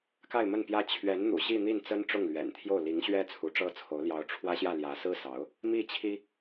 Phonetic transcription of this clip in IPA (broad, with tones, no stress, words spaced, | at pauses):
ka˥˧ɪ̯mə˥˩npjä˥ t͡ɕʰɥɛ˧˥nn̪ṵ˨˩ ɕi˥˧n̪i˥˩nt͡sə˥n ʈ͡ʂʊ˥˩ŋlɥɛ̰˨˩nt̪ʰjo˥˩ʊ̯ li˧˥ŋɕɥɛ˥ t͡sʰu˧˥ʈ͡ʂɤ˥˩t͡sʰo˧˥ʊ̯ ljɑ˧˥ʊ̯ʈ͡ʂʰwä˥ɕjä˥˩ ljä˧˥sɹ̩˥sɑ˧˥ʊ̯ | mi˥˩t͡ɕʰi˥